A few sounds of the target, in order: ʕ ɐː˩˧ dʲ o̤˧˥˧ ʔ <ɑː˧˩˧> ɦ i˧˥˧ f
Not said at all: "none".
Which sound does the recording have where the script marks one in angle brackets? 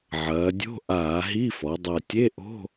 aː˧˩˧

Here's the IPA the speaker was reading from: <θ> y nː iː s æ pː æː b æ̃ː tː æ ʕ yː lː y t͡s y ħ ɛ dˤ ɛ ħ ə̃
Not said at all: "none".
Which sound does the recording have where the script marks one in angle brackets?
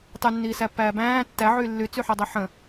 tˤ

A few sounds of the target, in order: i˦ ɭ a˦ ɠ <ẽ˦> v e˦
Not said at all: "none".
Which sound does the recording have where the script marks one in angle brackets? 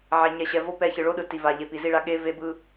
e˦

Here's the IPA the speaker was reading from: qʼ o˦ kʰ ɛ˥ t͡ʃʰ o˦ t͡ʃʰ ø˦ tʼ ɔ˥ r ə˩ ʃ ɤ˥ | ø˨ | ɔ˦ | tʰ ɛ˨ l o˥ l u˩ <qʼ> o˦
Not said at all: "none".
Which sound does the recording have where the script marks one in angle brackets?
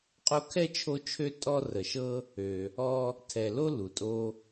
tʼ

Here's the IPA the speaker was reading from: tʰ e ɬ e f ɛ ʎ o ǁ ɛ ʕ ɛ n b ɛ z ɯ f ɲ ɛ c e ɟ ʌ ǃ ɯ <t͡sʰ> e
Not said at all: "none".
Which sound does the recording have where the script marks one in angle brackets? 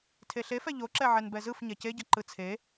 t͡sʰ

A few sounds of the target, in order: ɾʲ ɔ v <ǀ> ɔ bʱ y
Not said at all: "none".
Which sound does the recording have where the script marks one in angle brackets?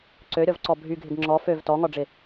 ǀ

